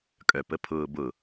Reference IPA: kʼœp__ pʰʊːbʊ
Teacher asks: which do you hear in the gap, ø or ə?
ə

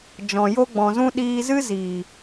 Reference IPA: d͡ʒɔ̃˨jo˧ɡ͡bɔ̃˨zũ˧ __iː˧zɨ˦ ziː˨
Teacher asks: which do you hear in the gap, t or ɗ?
ɗ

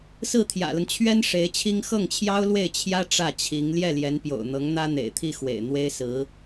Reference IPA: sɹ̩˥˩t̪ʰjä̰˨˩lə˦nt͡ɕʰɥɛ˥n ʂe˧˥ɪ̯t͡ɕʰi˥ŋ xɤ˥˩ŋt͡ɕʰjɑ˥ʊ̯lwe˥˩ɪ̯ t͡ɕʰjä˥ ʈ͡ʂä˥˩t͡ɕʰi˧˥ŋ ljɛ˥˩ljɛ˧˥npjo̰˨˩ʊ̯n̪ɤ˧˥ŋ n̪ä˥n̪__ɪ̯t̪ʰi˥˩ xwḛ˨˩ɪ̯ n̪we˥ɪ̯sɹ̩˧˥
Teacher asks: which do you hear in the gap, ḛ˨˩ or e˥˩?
ḛ˨˩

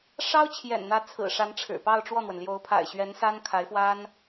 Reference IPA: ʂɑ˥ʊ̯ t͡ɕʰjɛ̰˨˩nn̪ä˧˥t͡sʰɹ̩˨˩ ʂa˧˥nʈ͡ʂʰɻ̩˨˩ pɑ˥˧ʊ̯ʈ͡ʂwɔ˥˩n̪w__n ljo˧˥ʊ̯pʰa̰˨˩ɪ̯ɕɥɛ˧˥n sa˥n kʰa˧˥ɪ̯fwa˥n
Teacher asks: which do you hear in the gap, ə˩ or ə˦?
ə˩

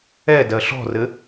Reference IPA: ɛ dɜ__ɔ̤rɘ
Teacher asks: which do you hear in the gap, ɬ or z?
ɬ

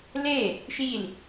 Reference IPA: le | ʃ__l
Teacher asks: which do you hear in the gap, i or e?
i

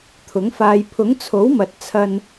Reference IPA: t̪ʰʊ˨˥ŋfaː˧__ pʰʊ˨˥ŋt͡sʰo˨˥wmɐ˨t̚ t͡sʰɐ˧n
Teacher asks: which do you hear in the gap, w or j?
j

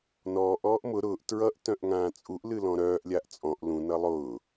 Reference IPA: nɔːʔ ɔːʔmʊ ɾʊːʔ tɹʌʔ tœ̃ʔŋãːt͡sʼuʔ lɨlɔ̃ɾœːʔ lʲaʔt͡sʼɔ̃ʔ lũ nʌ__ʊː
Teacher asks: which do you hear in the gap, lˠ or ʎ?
lˠ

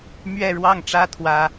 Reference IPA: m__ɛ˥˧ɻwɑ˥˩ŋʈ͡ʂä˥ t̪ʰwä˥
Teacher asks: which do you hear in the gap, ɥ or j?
ɥ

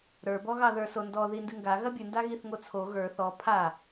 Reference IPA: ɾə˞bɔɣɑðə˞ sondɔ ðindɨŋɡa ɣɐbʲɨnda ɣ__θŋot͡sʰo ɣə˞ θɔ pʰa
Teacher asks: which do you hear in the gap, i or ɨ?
i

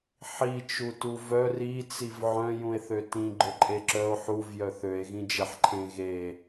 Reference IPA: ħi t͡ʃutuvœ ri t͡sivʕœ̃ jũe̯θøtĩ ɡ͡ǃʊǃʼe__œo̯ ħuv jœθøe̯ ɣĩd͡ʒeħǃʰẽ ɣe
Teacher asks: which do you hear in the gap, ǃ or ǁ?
ǁ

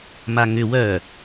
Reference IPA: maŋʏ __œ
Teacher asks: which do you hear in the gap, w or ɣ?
w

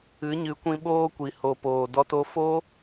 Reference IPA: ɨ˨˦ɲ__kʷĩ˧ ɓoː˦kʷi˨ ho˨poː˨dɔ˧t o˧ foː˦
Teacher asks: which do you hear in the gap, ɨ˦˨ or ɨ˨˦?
ɨ˨˦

